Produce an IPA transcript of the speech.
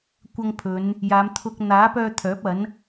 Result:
kʷɐ˧ŋpʰɵ˨˧n | jaː˨˧mt̪ʰʊ˧k̚ n̪aː˨˥pœː˧ t̪ʰœː˨˥p̚ɐ˨˥n

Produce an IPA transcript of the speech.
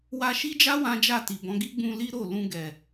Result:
wa˧ʃi˦d͡ʒa˦ wã˦d͡ʒa˦˨ti˨bɔ̃˨˦ ɡi˦ɡ͡bũ˧li˦ ɾo˦˨ lũ˧ɡɛ˨

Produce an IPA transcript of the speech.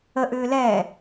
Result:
ə ʔʏːlɛː

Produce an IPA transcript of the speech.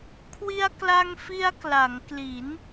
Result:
kʰwi˧a̯kla˧ŋfi˧a̯ kla˩˦ŋkli˩˦n

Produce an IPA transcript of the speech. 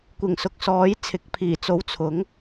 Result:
kʷɪ˨˩ŋ sʊ˨k̚sɔː˨˥jt͡sʰɪ˨˥k̚ pʰiː˨˩t͡so˨˥w t͡sʰʊ˨˥ŋ

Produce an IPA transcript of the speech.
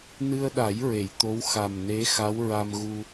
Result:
nɨ˧ə̯ɗa˨˩˦j ɹe˨˩˨jt̪o˧˥w xa˨˩mne˧˥ xa˧˥wɹa˧m ɣu˧

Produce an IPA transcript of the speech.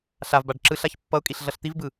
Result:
ɬavbaɖ ǁɯɬaç pːʌʊ̯kʼiɬ ɮʌɬt̪ivbɯ

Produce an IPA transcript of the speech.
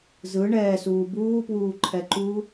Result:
zɯ ɳɛːsuː buːpwuːǃʰɛǃuː

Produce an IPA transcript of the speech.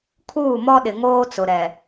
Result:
kʰuː˦˨mɔ˦ ɗɪ˨ŋoː˦t͡sʊ˨ ɾɛ˨

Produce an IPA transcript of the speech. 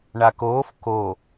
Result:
ɳakoːf ko

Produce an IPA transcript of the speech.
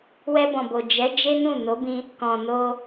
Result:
wɛ˧bɔ̃˨bo˨ d͡ʒɛ˨˦ d͡ʒe˦nũ˦˨ no˨˦bĩ˧ | kɔ̃˨no˧

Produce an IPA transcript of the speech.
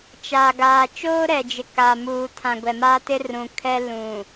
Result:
t͡ʃaː˨ɡaː˨ t͡ʃoː˦ɾɛ˨d͡ʒɪ˨ ka˨ muː˨tʰã˨ ɡʷɛ˨maː˦ tɪ˦rũ˨ kʰɛ˦ lũ˨

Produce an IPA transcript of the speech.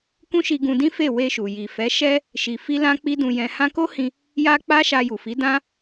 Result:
kũ˦ʃi˧ɡũ˧dĩ˦ fe˦˨we˧ʃu˨ ji˨fɛ˨˦ ʃɛ˧ | ʃi˧fi˦lã˦k͡pi˦ dũ˧jɛ̃˧hã˦ ko˦hĩ˧ | ja˦k͡pa˦ ʃa˧ju˨ fi˨˦ dã˦

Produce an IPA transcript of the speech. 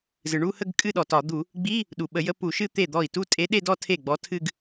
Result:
zɨ˩ɳu˥˧hə˥˧ɡ kʼɨ˥˧ɗɔ˩tɒ˧˩˧ d̪u˧˩˧ | ɡ͡bi˧˥˧ | ɗu˩ɓə˧˩˧jə˧˥˧ pu˧˩˧ʃɨ˥˧ t̪e˥˩d̪ɔ˥˩i̯ tu˥˧tʼe˧˥ ɗe˥˧dɔ˥˧ tʰe˥˩ɡ͡bɔ˧˥tʰɨ˥˧ɡ

